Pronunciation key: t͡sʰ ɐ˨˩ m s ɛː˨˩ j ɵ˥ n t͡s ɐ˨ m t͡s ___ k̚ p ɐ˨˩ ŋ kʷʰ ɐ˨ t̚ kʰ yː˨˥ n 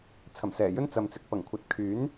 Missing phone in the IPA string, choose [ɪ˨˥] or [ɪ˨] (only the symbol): ɪ˨